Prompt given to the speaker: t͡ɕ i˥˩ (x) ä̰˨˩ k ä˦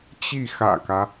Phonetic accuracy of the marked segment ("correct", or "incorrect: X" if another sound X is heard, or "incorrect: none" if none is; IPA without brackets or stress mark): correct